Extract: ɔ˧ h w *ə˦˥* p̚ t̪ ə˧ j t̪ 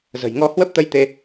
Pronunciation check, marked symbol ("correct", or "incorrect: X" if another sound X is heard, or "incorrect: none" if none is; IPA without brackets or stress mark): correct